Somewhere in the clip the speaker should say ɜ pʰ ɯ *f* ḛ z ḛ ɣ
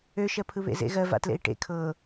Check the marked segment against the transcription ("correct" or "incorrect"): incorrect